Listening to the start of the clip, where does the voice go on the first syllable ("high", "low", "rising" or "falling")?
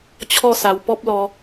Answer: falling